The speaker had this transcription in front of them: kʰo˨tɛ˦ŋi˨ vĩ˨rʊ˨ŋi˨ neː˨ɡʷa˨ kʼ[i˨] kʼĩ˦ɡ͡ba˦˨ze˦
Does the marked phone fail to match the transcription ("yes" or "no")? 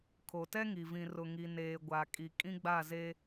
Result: no